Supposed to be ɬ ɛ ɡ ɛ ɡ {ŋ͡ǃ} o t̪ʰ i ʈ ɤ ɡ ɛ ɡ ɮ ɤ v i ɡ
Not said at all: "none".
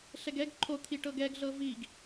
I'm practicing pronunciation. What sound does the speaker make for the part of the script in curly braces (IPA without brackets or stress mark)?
ǃʰ